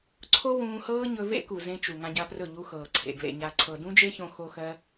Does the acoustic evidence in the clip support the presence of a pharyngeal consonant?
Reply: no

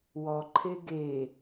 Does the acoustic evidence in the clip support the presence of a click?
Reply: yes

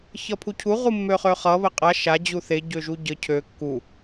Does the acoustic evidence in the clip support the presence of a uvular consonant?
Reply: yes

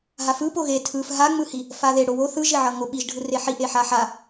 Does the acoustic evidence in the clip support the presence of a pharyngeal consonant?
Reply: yes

